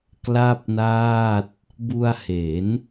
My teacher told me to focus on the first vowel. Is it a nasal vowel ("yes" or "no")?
no